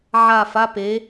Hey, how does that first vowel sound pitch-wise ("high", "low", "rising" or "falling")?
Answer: falling